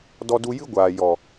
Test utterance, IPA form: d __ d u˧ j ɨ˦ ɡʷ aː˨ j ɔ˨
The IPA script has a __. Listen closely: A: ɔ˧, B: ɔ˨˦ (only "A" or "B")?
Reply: A